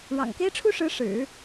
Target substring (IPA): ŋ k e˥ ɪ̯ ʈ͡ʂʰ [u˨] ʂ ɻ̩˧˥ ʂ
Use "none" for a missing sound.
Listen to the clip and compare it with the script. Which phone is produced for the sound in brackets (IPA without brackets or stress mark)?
u˥